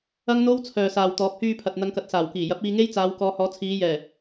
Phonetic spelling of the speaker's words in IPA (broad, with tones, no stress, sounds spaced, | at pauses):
ɐ˥ ŋ n̪ o˥ w t͡sʰ œː˨ s aː˨ w t̪ ɔː˨˥ p̚ h yː˧ pʰ ɐ˨ t̚ n̪ ɐ˨˧ ŋ k ɐ˨ t̚ s aː˨˩ w k iː˨˩ j ɐ˨˥ p̚ iː˧ ŋ e˥ j t͡s aː˨˧ w k ɔː˨˧ h ɔː˨˥ t͡sʰ iː˨˧ j ɛː˨˩